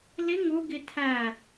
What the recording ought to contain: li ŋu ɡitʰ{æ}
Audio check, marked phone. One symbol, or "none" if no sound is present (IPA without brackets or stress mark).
æ